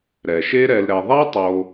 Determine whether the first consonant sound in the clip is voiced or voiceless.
voiced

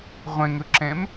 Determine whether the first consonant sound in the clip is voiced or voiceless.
voiced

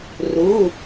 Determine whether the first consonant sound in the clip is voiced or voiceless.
voiced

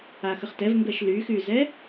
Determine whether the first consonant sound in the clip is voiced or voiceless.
voiceless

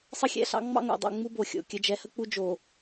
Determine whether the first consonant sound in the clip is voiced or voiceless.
voiceless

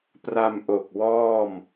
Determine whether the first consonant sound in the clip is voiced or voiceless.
voiceless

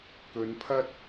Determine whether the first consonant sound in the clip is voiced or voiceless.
voiceless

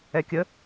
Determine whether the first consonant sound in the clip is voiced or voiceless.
voiceless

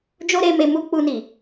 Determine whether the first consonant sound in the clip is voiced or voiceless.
voiced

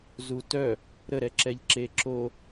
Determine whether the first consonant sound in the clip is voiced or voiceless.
voiced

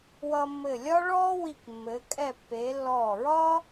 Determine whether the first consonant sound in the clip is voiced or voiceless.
voiced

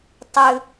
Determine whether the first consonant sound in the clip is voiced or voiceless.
voiceless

